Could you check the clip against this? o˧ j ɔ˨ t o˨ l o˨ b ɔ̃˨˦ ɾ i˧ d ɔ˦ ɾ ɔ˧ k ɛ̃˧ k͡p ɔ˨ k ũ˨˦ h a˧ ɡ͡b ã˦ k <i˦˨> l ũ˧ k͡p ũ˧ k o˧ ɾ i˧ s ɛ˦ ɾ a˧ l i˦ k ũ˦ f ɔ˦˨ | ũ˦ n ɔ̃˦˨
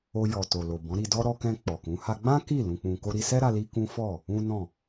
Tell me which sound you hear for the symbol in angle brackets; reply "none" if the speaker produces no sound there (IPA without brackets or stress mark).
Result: i˦˨